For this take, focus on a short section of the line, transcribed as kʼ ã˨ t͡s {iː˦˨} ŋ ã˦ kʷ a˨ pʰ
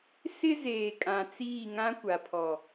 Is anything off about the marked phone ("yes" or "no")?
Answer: no